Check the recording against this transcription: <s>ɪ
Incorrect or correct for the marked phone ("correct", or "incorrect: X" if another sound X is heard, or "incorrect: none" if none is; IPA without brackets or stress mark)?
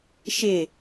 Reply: incorrect: ʃ